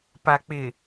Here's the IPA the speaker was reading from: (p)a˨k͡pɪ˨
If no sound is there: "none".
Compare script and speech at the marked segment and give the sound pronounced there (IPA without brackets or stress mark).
p